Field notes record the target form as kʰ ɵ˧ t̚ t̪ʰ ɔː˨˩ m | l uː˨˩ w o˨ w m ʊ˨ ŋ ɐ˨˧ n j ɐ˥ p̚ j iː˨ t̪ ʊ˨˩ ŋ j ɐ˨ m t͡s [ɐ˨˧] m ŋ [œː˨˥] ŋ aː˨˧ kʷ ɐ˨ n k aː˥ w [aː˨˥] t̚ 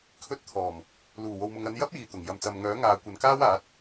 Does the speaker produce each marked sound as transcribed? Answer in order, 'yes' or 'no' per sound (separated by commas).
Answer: no, yes, yes